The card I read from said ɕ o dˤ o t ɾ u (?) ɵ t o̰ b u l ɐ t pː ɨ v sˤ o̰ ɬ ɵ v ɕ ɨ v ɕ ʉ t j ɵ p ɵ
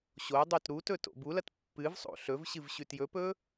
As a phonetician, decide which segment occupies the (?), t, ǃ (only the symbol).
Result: t